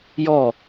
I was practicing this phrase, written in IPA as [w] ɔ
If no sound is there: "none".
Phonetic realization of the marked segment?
j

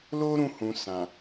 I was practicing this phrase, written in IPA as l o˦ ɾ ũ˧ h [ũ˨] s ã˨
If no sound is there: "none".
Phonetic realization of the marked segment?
ũ˨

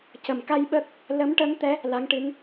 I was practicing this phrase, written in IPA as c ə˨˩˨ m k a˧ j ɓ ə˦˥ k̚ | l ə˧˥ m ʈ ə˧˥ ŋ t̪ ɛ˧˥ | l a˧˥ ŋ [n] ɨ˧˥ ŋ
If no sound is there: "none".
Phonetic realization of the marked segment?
ʈ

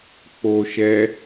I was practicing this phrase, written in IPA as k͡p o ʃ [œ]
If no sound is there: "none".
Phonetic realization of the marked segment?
ɛ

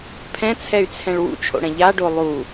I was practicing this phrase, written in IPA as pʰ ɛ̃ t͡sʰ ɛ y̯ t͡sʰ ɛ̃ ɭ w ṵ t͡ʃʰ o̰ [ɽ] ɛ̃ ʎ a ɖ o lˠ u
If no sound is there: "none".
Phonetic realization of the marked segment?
ɽ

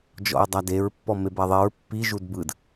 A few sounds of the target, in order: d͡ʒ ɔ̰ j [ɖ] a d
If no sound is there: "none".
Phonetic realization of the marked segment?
dˤ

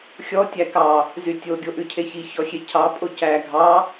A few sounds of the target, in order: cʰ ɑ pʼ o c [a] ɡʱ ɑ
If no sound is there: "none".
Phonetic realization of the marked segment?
æ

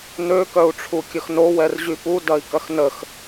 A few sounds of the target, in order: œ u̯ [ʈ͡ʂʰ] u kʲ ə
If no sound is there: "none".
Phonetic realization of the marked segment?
ʈ͡ʂʰ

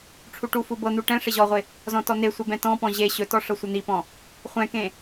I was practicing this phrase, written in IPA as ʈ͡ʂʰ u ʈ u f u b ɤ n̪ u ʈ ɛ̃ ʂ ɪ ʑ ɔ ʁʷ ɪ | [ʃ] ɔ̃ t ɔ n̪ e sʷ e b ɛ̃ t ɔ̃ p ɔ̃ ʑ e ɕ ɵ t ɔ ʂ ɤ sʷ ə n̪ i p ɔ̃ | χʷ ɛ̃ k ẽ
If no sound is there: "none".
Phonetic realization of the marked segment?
z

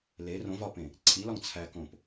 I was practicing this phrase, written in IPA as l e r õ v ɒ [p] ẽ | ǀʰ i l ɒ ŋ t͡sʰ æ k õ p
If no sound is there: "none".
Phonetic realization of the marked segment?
p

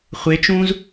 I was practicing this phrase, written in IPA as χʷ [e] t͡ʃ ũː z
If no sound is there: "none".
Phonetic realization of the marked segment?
e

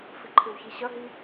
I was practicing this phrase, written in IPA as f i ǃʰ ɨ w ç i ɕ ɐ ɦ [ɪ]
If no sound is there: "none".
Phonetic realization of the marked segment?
i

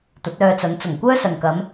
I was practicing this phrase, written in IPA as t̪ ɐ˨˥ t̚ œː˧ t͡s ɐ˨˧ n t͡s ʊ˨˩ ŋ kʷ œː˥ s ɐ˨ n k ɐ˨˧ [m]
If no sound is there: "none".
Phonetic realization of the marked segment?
m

